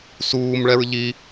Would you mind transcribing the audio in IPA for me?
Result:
s uː m ɭ ɛ ɹ ʎ i

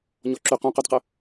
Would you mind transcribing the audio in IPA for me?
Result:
ɲ ɔ ǁ y q ũ q ʉ d q ə

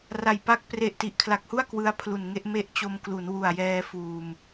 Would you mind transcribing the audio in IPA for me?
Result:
r a˨˩ j p a˦˥ k̚ p r e˨˩ ʔ t i˨˩ ʔ kʰ l a˨˩ k̚ h u˥˩ a̯ k w ɯ˧ a̯ pʰ l u˨˩ n ŋ e˥˩ ʔ m e˦˥ ʔ t͡ɕ o˧ m k l u˩˦ n w u˨˩ a̯ j ɛː˧ f uː˨˩ m

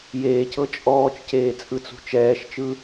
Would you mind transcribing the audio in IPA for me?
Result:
j eː c ɤ t͡ʃʼ ɔː t͡ʃ c eː t͡sʼ ɯ t͡s ṳ t͡ʃ ɛː ʃ t͡ʃ ɯ

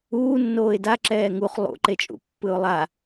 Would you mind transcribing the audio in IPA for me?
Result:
uː nː oː ɪ̯ d a ǁ ɛː ŋ u χ lˠ ṵ ǃ e t͡ʃʼ ṵ pː ɯ ʊ̯ lˠ a

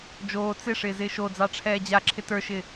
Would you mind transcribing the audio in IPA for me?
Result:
d͡ʒ oː t͡s ɪ ʂ ɪː z ɪː ʃ o d͡z ɑ ʈ͡ʂʰ ɛː d͡ʑ a ǁʰ ɪ t ə˞ ʃ ɪː

